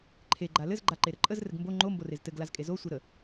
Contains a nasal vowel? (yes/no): no